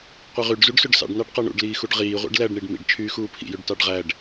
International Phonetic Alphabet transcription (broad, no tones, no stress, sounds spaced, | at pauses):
qʷ i ʁ y ɖ z u ɖ s ø ɖ s ɑ̰ ɖ n ɑ ɖ q ɑ ɳ ṵ ɖ l iː x u ɖ ʁ iː ʁʷ ḭ ɖ l æ ɖ ɳ i ɖ m ḭ ɖ t͡ʃʰ yː x uː pʰ ḭ j ø ɖ t ɑ ɖ ʁ æ ɖ